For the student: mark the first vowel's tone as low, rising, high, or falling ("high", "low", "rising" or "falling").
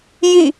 falling